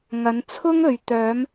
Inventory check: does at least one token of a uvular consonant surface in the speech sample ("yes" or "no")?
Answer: no